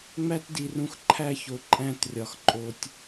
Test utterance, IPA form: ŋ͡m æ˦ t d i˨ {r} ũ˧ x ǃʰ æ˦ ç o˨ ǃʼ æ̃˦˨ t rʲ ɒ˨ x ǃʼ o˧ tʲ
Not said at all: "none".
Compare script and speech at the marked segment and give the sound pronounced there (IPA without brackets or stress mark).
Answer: r